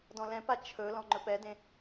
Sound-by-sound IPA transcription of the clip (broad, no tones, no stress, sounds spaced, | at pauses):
d ɔ̃ l ɛ̃ p a t͡ʃʰ ɵ l ɔ̃ ŋ͡ǃ ɵ p ɛ d ẽ